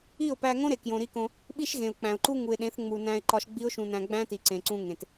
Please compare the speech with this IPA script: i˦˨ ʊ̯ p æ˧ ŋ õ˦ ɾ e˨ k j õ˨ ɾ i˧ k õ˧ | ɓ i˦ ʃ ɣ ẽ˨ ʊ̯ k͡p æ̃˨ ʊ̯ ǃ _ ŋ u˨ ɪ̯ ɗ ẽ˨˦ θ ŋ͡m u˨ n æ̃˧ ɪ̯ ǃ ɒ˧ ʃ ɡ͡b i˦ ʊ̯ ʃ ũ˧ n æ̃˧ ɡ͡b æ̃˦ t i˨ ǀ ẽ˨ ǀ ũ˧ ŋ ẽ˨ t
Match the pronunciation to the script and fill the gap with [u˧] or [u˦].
u˦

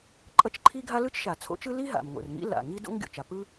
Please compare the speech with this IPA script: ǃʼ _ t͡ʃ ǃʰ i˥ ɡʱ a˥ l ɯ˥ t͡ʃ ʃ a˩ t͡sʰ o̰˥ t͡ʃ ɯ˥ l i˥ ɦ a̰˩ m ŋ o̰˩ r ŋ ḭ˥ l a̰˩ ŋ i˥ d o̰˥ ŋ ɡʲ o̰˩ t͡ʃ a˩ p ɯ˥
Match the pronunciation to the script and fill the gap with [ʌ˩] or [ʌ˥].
ʌ˥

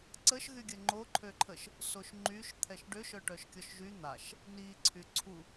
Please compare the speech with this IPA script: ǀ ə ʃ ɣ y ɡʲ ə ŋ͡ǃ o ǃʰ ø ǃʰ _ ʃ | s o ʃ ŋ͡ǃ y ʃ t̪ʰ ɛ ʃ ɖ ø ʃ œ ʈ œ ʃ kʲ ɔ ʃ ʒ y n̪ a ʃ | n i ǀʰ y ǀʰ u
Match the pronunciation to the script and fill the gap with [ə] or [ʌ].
ə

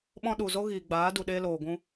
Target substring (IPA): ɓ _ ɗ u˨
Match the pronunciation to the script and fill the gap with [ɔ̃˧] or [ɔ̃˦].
ɔ̃˧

